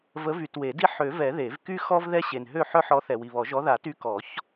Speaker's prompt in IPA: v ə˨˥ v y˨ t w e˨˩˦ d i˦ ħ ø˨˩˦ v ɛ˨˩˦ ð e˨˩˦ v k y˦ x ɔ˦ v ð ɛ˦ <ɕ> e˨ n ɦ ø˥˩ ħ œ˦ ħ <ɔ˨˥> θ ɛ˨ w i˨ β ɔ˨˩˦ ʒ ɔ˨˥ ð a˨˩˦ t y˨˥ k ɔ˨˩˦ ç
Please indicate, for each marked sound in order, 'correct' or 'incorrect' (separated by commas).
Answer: correct, correct